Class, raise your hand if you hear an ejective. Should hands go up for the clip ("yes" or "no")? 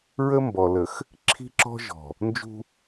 no